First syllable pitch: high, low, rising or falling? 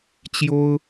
high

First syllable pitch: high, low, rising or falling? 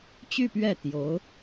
falling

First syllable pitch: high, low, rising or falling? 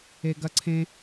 high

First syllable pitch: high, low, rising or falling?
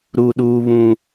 low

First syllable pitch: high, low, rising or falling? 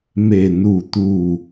low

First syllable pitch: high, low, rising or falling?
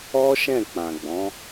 high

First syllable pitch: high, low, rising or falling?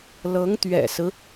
rising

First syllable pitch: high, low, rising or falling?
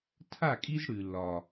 falling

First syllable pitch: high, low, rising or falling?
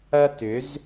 high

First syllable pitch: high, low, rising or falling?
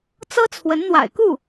high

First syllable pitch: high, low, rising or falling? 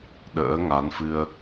rising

